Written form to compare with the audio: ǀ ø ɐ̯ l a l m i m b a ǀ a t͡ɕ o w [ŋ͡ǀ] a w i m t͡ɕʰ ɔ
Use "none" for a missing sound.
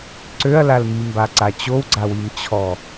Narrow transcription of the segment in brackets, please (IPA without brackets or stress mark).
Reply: ɡ͡ǀ